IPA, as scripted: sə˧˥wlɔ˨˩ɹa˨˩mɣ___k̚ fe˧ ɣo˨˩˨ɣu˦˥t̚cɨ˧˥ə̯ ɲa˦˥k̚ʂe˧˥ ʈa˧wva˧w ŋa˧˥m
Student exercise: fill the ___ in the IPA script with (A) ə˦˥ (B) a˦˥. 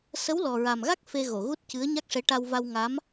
B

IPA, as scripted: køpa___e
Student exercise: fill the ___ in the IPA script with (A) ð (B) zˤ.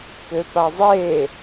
B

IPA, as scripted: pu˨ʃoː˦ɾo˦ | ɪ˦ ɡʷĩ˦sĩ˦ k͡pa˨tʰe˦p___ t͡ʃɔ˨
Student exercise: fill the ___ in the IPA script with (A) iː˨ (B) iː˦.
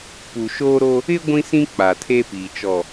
A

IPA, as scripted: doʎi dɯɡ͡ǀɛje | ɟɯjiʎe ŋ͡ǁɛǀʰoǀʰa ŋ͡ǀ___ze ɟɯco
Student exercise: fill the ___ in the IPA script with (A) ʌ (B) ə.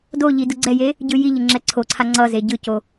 A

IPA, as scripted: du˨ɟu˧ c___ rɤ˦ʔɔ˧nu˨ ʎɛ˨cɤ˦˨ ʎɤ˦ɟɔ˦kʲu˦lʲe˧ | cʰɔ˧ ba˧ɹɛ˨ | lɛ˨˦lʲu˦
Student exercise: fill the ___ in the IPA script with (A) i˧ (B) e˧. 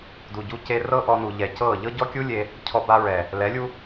B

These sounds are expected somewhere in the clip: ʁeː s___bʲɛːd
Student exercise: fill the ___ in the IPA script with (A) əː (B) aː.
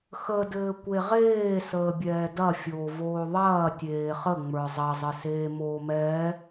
A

